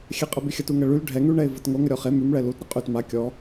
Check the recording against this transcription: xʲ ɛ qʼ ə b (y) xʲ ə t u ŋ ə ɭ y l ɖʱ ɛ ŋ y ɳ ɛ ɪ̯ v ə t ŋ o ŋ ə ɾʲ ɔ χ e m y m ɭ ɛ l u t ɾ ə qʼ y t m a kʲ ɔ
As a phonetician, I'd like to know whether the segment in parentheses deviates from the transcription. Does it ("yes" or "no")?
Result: no